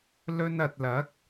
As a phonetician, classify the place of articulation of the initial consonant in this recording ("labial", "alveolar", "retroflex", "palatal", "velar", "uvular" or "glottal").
alveolar